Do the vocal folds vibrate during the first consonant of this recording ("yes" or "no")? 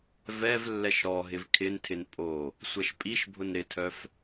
yes